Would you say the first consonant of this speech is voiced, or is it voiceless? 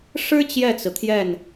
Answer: voiceless